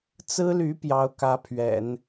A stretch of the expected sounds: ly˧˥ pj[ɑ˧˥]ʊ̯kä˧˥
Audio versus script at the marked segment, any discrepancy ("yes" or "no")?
no